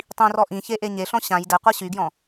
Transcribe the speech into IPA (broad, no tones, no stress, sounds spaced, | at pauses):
tˤ ĩ r ɔ ʔ ĩ ç e ʔ e ɲ e ɬ ɔ̃ ɕ ã j d ɛ qʷ a ɕ y ɡ j ɔ̃